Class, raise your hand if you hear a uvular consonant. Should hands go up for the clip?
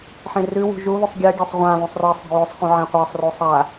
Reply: yes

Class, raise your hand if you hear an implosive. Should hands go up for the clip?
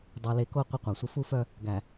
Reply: no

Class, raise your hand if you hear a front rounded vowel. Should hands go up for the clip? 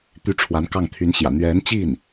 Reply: yes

